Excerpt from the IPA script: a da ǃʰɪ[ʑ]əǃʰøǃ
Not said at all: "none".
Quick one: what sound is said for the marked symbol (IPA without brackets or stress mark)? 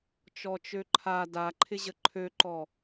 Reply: ʑ